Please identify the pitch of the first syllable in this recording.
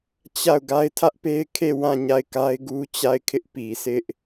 falling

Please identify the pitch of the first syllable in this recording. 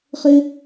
high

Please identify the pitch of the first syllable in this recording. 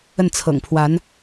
falling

